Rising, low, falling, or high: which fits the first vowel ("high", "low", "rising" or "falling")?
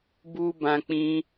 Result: high